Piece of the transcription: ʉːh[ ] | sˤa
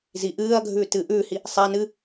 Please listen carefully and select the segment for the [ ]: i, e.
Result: i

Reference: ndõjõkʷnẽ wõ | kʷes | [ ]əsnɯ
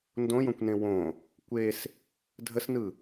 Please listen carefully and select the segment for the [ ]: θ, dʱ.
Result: dʱ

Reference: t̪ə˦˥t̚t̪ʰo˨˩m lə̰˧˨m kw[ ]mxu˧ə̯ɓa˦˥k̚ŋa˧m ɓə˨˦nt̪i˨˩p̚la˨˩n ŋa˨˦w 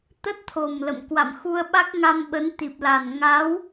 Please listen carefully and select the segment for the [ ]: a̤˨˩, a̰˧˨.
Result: a̰˧˨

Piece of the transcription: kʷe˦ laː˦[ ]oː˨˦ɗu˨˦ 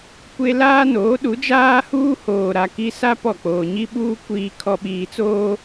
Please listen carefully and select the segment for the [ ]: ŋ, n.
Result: n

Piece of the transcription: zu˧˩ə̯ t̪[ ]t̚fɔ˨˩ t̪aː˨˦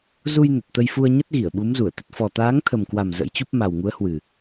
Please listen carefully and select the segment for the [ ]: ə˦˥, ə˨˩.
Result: ə˨˩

